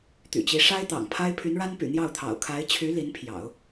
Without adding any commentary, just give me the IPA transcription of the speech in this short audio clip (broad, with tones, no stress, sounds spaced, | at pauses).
t̪ y̰˨˩ t͡ɕ i˧˥ ʂ a˥ ɪ̯ t̪ ɑ̰˨˩ ŋ pʰ a˥ ɪ̯ pʰ y˧˥ n ɻ a˥ n p y̰˨˩ n̪ j ɑ˥˩ ʊ̯ t̪ʰ ɑ̰˨˩ ʊ̯ kʰ a˧˥ ɪ̯ t͡ɕʰ y˧˥ l i˧˥ n pʰ j ɑ̰˨˩˦ ʊ̯